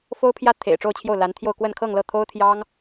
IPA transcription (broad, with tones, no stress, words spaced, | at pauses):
fo˥ʊ̯pʰjä˥t̪ʰḛ˨˩ɪ̯ ʈ͡ʂo˥˧ʊ̯t͡ɕʰjo˥˩ʊ̯la˧˥nt̪ʰjo˥˧ʊ̯ kwə˥˧nkʰɤ˥˧ŋlɤ˥˩ t̪ʰo˥ʊ̯t̪ʰjɑ˥ŋ